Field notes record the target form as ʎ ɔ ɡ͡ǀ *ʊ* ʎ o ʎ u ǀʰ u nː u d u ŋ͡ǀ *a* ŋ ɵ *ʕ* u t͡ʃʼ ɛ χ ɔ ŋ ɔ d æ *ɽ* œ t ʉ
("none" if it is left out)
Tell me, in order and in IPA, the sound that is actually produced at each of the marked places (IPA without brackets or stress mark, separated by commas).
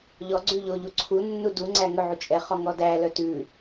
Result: ʉ, æ, ʕ, l